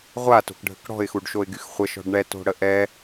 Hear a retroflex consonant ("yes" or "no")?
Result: yes